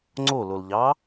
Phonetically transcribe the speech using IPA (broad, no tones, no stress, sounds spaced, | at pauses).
ŋ͡ǀ o l o l ʎ ɑ